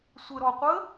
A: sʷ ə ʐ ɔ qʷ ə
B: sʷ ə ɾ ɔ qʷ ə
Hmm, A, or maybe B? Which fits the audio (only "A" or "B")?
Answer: B